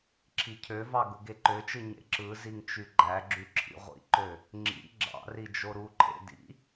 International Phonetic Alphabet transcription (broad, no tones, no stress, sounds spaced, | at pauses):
ǁʰ i cʰ ø v ɑ ɡ u ɡ e ǃ ø t͡ʃ ɯ ɲ ḛ ǁ ɯ z i ŋ t͡ʃ y ɡ͡ǃ æ ɡ͡ǁ y ǁʰ ḭ ʁʷ ḭ ǃ ø | ŋ͡ǁ ḭ ɡ͡ǁ ɑ̰ r i d͡ʒ o ɾ u ǃʰ ḛ d ḭ